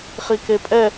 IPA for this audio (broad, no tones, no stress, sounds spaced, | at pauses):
χ i k e pʼ ɛ